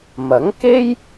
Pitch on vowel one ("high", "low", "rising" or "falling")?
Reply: rising